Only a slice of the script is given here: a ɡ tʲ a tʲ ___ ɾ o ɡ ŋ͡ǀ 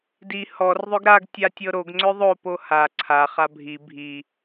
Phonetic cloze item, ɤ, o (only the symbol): ɤ